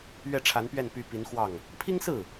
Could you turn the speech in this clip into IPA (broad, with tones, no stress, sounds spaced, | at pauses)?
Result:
ɥ ɛ˥˩ ʈ͡ʂʰ a˧˥ n p ɥ ɛ˥˩ n p y˧˥ p i˧˥ n x w ɑ˥˩ ŋ | pʰ i˥ ŋ s ɹ̩˥˩